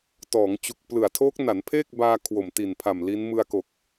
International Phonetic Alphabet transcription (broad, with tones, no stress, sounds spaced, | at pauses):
t ɔː˩˦ ŋ t͡ɕ u˨˩ k̚ p l ɯ˨˩ a̯ tʰ oː˦˥ k̚ n a˩˦ n pʰ eː˥˩ k̚ b aː˧ kʰ w o˨˩ m t i˨˩ n pʰ a˨˩ m l i˦˥ n m ɯ˧ a̯ k o˨˩ k̚